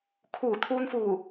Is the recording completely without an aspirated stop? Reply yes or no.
no